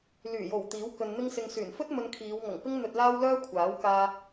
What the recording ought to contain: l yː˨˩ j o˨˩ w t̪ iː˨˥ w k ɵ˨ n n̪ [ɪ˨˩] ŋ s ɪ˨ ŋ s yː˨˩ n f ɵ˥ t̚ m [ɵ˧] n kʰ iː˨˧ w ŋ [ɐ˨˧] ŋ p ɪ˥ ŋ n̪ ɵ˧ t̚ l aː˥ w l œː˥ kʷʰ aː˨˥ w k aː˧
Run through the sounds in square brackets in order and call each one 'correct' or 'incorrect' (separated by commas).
incorrect, correct, incorrect